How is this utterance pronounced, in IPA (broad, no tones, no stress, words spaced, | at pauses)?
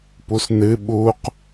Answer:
pusnɨ ɓuq